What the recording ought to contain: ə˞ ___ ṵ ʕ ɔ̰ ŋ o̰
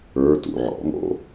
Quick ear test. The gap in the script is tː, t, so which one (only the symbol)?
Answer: t